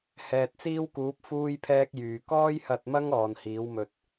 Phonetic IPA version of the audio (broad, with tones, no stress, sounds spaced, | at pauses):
h ɛː˨ t̚ t͡s iː˥ w k uː˨˥ p̚ f uː˥ j pʰ ɛː˥ k̚ j yː˨ k ɔː˥ j h ɐ˧ t̚ m ɐ˥ ŋ ɔː˨ n h iː˨˥ w m ɵ˧ t̚